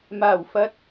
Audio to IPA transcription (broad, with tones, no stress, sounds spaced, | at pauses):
m aː˨˩ w f ɐ˨ t̚